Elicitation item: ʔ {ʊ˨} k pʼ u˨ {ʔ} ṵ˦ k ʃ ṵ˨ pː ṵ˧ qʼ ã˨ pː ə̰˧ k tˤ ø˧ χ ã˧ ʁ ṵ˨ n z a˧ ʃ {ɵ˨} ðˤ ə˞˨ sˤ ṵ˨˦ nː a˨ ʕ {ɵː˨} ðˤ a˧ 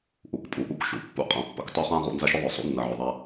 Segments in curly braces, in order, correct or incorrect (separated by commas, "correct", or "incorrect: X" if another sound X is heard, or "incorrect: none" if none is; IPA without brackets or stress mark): incorrect: u˨, correct, incorrect: ɵ˧, incorrect: ɵ˨